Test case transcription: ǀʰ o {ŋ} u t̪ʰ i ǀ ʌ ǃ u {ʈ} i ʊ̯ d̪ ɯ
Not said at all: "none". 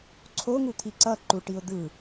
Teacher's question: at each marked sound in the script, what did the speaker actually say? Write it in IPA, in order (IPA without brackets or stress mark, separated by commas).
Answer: ŋ, ʈ